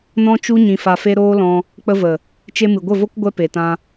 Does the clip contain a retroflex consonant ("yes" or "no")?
no